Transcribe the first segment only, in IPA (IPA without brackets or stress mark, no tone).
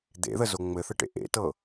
d̪